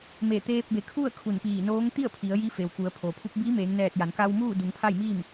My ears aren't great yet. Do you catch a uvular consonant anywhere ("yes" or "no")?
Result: no